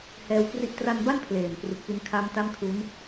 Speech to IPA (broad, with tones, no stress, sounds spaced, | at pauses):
h ɛː˧ w k r i˦˥ ʔ t r a˧ n b a˥˩ n pʰ l eː˨˩ m p r u˨˩ k̚ p i˧ n kʰ a˦˥ m t a˥˩ m kʰ u˦˥ n